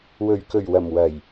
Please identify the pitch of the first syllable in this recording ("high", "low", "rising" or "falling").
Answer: low